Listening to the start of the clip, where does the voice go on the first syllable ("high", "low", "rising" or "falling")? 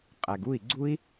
low